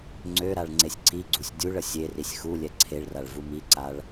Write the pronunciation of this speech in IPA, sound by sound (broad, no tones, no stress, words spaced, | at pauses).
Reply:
ŋ͡ǀøɾaɭ ŋ͡ǀesʲǀiɡ͡ǀusʲ dʲuɭə sʲerisʲ xu lʲɛǀʰeɭraɭ vumiǀaɭ